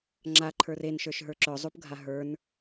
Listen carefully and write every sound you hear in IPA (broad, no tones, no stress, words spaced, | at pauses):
ŋ͡ǁa ǃʰə˞ren ʃə˞ʃɦə˞ǁœ zˤupɡʱaɦə˞n